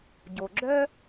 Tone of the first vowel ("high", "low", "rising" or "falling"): low